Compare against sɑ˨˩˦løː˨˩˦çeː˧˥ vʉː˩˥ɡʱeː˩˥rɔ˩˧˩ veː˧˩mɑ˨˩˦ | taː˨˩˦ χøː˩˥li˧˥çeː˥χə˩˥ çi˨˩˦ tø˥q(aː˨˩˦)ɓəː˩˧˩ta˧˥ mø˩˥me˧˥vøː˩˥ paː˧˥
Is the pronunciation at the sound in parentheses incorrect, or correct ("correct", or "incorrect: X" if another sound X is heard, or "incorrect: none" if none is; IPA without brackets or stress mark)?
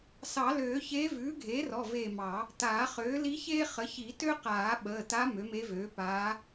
correct